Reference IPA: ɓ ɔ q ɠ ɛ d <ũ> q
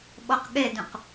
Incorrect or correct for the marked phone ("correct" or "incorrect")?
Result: correct